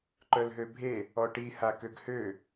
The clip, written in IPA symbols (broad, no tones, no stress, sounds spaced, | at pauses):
ǃ œ l ɦ ø bʱ e | ɔ ʈ i h a k ø ɡ h ø